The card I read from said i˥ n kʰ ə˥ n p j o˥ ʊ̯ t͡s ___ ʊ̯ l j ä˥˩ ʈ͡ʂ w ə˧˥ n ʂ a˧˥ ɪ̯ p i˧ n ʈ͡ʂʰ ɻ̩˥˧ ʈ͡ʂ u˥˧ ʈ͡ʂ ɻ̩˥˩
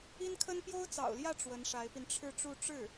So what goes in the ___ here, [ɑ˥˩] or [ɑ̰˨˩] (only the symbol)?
ɑ̰˨˩